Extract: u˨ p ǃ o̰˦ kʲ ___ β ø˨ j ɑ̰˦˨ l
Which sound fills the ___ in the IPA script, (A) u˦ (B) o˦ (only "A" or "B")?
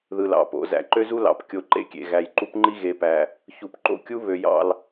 A